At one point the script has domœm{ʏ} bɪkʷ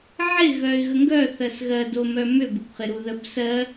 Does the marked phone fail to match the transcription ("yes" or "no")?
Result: no